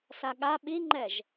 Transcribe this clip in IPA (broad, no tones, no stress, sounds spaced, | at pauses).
s a ɠ a ɓ i ŋ͡ǃ ɛ ʒ